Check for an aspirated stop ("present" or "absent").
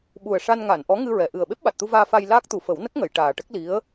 absent